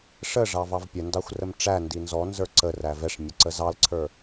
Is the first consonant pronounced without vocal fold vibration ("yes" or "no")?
yes